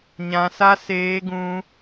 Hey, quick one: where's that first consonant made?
palate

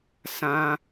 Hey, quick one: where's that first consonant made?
tongue tip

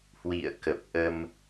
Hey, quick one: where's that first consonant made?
throat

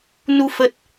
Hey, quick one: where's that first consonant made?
tongue tip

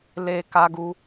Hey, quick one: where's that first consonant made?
tongue tip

